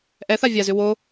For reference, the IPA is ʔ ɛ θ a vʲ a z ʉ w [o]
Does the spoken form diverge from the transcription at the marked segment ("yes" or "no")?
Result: no